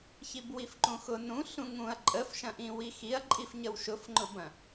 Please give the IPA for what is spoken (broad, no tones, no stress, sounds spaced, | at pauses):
ç i b w i f ǃ ũ x ʊ n ũ ɬ ũ ŋ ũ ɐ̯ ǃʼ ə f ʃ ɐ̃ ʔ ĩ w i x i ɐ̯ ǃʼ i f ɲ ə w ʃ ʊ f ŋ͡ǃ ʊ b ɐ̃